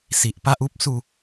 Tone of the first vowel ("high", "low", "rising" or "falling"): low